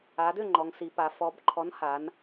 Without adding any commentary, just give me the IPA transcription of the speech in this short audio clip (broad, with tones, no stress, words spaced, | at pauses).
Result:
a˩˧dʏ˥˩ ŋ͡ǃɔ˩˧ŋsi˩˧pa˩˧ fɔ˩˧b ǃʰɔ˨˥nha˩˧n